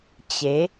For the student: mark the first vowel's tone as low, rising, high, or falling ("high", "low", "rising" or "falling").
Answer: rising